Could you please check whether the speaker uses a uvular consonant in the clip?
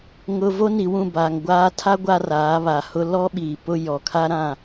no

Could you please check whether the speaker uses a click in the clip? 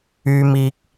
no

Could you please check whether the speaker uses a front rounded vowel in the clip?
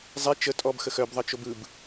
yes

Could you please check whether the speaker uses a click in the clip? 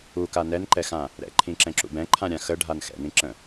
yes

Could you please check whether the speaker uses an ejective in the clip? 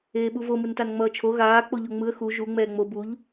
no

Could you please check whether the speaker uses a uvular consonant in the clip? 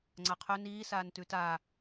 yes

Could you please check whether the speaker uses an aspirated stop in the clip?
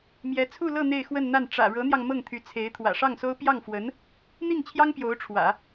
yes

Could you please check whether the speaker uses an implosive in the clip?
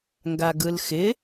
no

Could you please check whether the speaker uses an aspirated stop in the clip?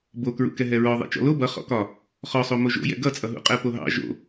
no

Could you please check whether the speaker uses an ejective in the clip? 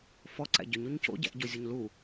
no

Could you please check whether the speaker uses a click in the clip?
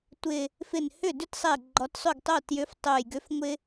yes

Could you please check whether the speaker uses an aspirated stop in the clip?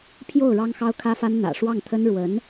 yes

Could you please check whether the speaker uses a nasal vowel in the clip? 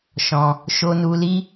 yes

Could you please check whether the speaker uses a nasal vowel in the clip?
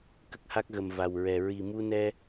no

